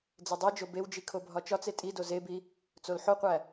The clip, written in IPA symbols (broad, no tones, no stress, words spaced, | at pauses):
d͡zedˤid͡ʒo bewd͡ʒi kʰobʱɒt͡ʃɒt͡se tʼido zebi | t͡solħoqʷæ